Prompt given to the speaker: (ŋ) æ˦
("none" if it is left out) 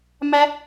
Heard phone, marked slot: m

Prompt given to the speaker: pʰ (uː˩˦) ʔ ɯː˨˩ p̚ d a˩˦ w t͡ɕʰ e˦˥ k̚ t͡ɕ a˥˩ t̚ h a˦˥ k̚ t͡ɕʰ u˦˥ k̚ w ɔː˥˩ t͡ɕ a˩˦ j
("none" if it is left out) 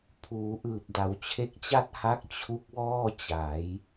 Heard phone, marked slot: uː˩˦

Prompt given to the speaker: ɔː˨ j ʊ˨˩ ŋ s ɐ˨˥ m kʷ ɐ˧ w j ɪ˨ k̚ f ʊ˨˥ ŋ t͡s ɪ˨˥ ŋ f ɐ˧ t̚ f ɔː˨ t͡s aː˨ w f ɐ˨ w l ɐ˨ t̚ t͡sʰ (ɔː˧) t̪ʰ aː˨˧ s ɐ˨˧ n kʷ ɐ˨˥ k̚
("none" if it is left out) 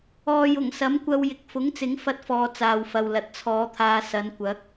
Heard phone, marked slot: ɔː˨˧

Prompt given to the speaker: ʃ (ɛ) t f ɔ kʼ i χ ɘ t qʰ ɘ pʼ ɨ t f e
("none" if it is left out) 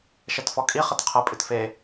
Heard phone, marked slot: ɛ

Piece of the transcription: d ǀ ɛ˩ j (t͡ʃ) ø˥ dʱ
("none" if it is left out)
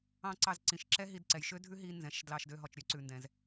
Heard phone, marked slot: ʃ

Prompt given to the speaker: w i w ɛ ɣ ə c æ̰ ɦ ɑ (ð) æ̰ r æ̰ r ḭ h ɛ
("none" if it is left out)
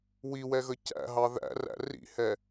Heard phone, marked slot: ð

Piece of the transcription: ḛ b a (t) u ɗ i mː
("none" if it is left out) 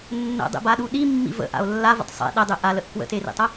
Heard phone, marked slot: ɗ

